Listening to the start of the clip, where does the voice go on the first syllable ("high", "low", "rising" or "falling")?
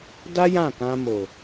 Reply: high